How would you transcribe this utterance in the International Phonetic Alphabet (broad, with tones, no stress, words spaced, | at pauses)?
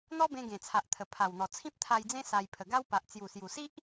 n̪ɔ˦bẽ˧ ɡẽ˨˩t͡sʰa˨ʔt̪ʰə˨˩ pʰa˨˩wn̪ɔ˨˩ t͡sʰĩ˦p̚t̪ʰa˧jd͡zẽ˦ sa˧j pʰə˨˩ɡa˦wpa˨ʔ t͡sju˨˩sju˨˩si˦ʔ